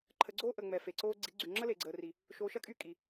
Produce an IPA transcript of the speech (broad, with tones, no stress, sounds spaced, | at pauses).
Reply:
ǃʰ ə˧ ɡ͡ǀ oː˦ ʔ əː˨ ŋ͡m ɛː˨ f e˨ ǀ oː˦ ɡ͡ǀ i˨˦ ɡ͡ǀ y˨ ŋ͡ǁ ə˦ l e˨ ɡ͡ǀ əː˨ r i˨ | ʃ oː˧ ʃ ɐ˦ kʼ y˦˨ kʼ i˨